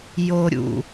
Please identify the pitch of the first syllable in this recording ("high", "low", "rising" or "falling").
low